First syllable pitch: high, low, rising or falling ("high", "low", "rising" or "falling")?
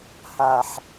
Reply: low